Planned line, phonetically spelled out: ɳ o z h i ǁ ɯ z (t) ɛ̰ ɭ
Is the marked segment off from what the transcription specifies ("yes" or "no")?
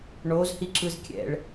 yes